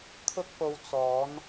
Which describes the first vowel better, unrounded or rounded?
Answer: rounded